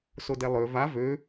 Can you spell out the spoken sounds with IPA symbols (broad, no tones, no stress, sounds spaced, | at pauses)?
s o d ɛ lˠ ø v a v ø